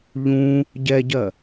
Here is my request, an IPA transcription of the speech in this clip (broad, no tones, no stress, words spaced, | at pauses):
ʎũ | ɟɛɟɜ